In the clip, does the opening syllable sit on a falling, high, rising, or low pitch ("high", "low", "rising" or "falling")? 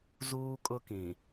high